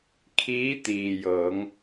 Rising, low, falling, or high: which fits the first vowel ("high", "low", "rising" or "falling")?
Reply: rising